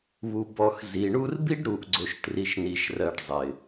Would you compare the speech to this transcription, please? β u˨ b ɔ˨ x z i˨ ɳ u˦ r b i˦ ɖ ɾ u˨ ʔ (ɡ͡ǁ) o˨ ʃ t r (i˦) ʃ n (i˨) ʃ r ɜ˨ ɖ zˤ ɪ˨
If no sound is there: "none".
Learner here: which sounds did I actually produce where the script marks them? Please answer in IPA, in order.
ɡ͡ǀ, i˨, i˨

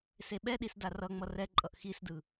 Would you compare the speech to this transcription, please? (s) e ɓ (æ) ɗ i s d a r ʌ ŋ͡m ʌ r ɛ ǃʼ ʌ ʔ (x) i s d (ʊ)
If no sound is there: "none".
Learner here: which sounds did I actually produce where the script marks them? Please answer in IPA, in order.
s, ɛ, x, ɯ

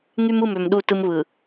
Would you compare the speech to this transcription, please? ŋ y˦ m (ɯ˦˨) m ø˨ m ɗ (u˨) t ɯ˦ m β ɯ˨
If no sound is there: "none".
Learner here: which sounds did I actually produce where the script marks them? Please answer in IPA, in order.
ɯ˦˨, u˦˨

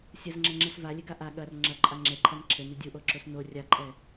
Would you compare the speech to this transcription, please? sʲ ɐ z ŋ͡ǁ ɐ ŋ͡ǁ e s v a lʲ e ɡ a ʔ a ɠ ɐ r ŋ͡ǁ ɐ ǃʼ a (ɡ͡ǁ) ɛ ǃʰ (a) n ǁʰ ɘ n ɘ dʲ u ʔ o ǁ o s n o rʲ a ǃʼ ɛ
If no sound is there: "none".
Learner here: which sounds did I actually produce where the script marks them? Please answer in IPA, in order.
ŋ͡ǁ, a

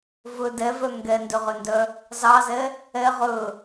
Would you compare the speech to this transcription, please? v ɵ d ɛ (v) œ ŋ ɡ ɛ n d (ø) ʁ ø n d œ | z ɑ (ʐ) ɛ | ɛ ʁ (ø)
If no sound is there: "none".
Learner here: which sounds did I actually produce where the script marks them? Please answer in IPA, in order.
v, ø, z, ɵ

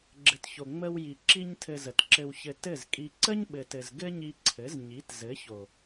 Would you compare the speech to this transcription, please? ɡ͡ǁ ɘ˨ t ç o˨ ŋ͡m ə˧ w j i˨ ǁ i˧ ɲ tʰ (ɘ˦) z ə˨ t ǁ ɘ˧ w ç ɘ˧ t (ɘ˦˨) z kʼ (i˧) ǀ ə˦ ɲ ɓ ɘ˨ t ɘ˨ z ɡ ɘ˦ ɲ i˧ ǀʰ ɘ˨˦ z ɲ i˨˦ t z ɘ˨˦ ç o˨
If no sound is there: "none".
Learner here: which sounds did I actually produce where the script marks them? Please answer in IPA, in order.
ɘ˧, ɘ˦˨, i˧

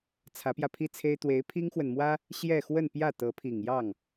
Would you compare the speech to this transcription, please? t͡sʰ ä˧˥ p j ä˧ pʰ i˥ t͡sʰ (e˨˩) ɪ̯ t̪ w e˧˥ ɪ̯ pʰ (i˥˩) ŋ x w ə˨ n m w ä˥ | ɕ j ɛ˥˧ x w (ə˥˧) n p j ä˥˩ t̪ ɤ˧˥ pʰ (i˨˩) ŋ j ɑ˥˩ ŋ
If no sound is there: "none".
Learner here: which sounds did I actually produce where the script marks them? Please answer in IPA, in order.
e˥, i˥, ə˥˧, i˨˩

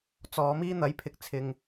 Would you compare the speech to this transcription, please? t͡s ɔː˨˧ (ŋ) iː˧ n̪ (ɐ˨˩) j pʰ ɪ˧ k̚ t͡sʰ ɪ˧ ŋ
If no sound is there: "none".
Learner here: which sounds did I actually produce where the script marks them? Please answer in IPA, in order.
m, ɐ˨˥

